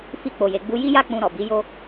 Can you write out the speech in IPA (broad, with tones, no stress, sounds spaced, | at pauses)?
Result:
f i˧ k͡p o˨ j e˨ ɡ͡b u˧ j i˦ j a˦ k͡p ũ˧ ɾ ɔ˨ b i˨˦ j o˦